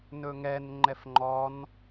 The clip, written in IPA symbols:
n ɵ ŋ ɛ n ŋ͡ǃ ɛ f ŋ͡ǃ ɔ n

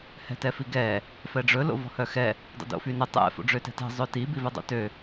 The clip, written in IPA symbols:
h ɛ̤ t ɛ f i ɡ ɛ | f ɛ ɖ͡ʐ ɵ l o̰ v ɔ̤ h œ x ɛ | dˤ o̰ d o̰ f y n ɵ tˤ ɛ̰ f o̰ ɖ͡ʐ ø t ɛ̤ t ɛ̤ zˤ ø t i b i v ɛ dˤ o̰ t ø

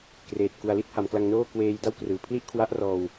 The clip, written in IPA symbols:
k r eː˨˩ t̚ k u˩˦ a̯ l i˥˩ t̚ h a˩˦ m k l a˧ ŋ n oː˥˩ k w eː˧ j d a˥˩ w k r ɯː˨˩ pʰ l i˥˩ ʔ kʰ w a˦˥ ʔ r ɔː˧ w

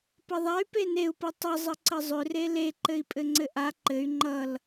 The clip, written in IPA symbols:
p ʌ ðˤ a y̯ p e n e u̯ p ʌ tˤ ə zˤ ə ǀ ə zˤ ʏ r e l e ǃ ɘ i̯ pʼ ɘ ŋ͡ǀ ɘ ʔ a ǃ ɘ y̯ ŋ͡ǃ ʌ l

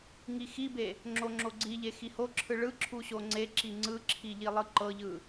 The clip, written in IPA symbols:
ŋ i x i b e | ŋ͡ǁ o ŋ͡ǁ o ɡ͡ǀ i ʎ e x i h o ǁʰ ɯ ɭ ɯ ǁʰ u ɕ o ŋ͡ǀ e ǁ i ŋ͡ǀ ɯ ǁʰ i ʎ i lˠ ɯ ǃ ɤ ʎ ɯ

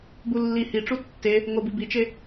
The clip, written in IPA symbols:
b u lː i h i ʈ͡ʂ u tː e | ŋ o b i b i t͡ʃ e

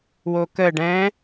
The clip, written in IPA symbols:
w o k ə ɖ ɛ̃

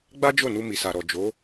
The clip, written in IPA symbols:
ɡ͡b a˦ d͡ʒ o˦˨ n u˧ m i˨ s a˨ ɾ ɔ˨ d͡ʒ o˨˦

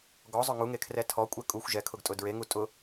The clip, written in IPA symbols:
ɡ ɔ zˤ ʊ ŋ u ŋ e kʰ r ɛ tʰ ɔ kʷʼ ɛ kʼ u xʷ ʒ ɛ kʰ ʊ ɡ tʼ ʊ d ɹ e ŋ u tʼ ʊ

